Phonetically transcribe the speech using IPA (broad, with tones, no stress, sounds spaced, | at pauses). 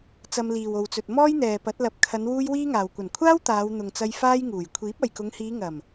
t͡s ɐ˧ m l iː˨ w o˨ w t͡s ɵ˨ t̚ m ɔː˥ j n̪ ɛː˨ p ɐ˨˥ t̚ l ɐ˨ p̚ kʰ ɐ˨˧ n w uː˥ j w iː˥ ŋ aː˨ w kʷ ɐ˨˩ n kʷʰ aː˥ w t̪ aː˨˧ w n̪ ʊ˨ ŋ t͡s ɐ˧ j f aː˥ j ŋ uː˨˩ j kʷʰ iː˨˥ p̚ ɐ˨ j k ʊ˨˧ ŋ h iː˨˧ ŋ ɐ˨˩ m